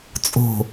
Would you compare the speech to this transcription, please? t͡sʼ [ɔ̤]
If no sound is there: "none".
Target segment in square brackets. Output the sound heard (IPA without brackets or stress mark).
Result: o̤